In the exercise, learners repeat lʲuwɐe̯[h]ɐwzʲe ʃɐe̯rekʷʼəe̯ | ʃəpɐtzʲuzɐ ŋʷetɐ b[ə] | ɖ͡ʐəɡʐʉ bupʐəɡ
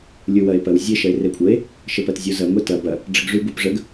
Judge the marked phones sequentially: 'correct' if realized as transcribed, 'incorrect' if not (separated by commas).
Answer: incorrect, incorrect